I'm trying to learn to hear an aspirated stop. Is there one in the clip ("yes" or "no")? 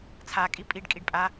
yes